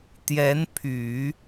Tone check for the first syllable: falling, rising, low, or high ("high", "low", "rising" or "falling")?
rising